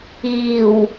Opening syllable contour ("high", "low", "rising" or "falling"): low